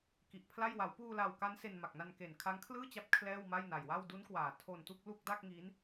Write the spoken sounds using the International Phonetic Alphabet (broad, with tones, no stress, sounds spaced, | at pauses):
k i˨˩ ʔ pʰ l a˥˩ j w a˩˦ w p uː˧ l a˨˩ w k a˦˥ n s e˧ n m a˨˩ k̚ n a˧ n k e˨˩ n kʰ a˦˥ ŋ kʰ l ɯː˥˩ t͡ɕ a˦˥ p̚ kʰ l ɛː˥˩ w m a˥˩ j n a˨˩ j w a˥˩ w d u˦˥ n k w aː˨˩ tʰ o˧ n t u˥˩ k̚ l u˥˩ k̚ d a˥˩ k̚ ŋ i˦˥ n